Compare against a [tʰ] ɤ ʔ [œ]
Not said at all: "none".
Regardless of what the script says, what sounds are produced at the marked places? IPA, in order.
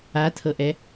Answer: tʰ, ɛ

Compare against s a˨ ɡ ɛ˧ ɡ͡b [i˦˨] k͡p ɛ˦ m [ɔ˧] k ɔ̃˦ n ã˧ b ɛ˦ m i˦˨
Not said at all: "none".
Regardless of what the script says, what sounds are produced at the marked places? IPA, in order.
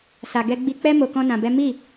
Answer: i˧, o˧

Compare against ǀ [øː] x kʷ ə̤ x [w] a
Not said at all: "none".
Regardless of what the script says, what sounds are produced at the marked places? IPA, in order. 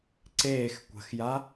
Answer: eː, j

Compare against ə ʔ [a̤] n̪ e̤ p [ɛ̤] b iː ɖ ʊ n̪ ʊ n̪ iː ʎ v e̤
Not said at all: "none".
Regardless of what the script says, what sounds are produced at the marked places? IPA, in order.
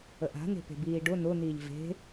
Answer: a̤, e̤

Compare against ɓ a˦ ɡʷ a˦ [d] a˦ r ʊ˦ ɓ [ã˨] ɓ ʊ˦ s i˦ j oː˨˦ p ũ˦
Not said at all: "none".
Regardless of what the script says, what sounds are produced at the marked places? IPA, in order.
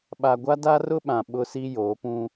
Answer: d, ã˨

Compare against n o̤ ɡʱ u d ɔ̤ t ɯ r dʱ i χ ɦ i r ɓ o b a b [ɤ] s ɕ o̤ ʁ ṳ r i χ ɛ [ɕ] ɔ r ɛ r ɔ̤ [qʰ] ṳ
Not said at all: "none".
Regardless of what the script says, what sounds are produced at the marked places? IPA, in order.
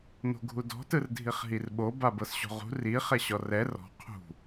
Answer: ɤ, ɕ, qʰ

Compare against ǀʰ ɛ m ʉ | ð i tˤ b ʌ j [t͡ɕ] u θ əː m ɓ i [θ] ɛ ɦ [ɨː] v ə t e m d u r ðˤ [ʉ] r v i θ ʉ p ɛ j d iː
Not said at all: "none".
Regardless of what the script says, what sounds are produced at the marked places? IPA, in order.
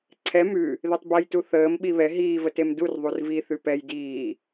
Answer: t, β, iː, u

